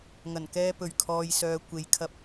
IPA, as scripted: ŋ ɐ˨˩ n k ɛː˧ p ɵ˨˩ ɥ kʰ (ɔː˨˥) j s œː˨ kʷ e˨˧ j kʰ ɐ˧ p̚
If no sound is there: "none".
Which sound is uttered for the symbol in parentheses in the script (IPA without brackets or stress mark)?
ɔː˨